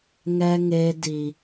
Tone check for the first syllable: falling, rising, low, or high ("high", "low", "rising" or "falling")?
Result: high